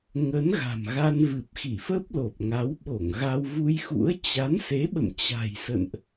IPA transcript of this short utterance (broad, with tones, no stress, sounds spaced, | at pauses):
ŋ ə˨˦ n ɣ a̤˨˩ m ɣ a˧ n v ɨ˨˩ p̚ x i˧˩ f ə˦˥ p̚ l o˨˩ p̚ ŋ a˨˦ w ɓ o˧˩ ŋ ɣ a˧ w v u˧ j x ṵ˧˥ ə̯ t͡ɕ a˨˦ n s e˨˦ ɓ ə̰˧˨ m t͡ɕ a̤˨˩ j s ə̰˧˨ n ʔ